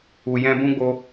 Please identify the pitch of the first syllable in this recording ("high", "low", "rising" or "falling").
low